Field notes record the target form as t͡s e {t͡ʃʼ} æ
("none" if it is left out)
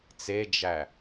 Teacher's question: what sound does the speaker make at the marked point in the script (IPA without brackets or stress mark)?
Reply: d͡ʒ